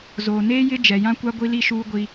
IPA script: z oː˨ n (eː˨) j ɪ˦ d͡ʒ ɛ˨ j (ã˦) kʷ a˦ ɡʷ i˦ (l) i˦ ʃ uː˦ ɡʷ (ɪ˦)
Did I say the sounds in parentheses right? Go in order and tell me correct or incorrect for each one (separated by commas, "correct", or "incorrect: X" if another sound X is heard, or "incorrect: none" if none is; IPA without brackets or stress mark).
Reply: incorrect: eː˦, correct, correct, incorrect: i˦